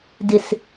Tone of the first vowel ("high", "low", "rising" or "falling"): low